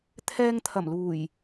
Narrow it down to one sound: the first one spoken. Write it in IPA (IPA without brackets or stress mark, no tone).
t̪ʰ